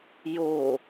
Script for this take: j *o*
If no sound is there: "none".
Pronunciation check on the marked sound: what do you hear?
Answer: o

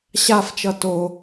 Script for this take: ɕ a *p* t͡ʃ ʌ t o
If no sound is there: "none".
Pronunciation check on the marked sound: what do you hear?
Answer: f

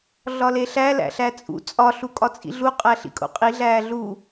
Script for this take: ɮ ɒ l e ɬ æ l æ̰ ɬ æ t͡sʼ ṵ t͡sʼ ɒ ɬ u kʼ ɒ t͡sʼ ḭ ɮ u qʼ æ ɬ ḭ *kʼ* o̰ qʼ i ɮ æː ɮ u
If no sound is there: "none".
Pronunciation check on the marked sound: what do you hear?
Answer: kʼ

